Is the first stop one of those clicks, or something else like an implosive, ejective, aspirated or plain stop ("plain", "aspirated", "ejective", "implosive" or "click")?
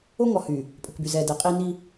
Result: ejective